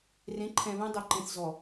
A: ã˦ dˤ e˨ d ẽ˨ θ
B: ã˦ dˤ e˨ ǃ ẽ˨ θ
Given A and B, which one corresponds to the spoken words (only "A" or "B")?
B